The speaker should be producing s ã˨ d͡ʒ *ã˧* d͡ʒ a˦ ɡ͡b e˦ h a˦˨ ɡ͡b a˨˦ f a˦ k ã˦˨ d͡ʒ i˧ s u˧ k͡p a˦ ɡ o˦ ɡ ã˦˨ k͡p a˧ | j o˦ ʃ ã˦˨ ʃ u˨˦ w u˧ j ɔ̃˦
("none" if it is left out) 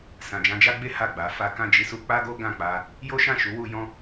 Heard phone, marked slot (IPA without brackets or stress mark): ã˧